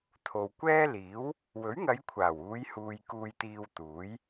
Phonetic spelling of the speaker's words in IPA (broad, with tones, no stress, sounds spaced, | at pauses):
t̪ʰ o˨ w kʷ ɛː˥ l iː˨˥ w | w ɵ˨˥ ɥ ŋ ɐ˨˧ j kʷʰ aː˨˩ w uː˨˧ j h uː˨ j k uː˧ j t̪ iː˧ w t̪ uː˨˥ j